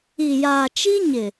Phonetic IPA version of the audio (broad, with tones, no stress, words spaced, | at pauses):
i˨jaː˨t͡ʃi˦ ɲɪ˨